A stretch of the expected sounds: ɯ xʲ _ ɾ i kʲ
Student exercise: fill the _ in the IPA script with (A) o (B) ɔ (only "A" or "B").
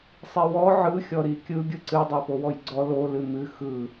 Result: B